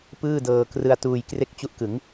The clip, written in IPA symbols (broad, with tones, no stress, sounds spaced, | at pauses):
p ɯː˥˩ d ɤː˧ k r ɯ˧ a̯ t uː˧ j k r e˥˩ k̚ t͡ɕ u˦˥ ʔ k ɯ˩˦ ŋ